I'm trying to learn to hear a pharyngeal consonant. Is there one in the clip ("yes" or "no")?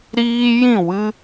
no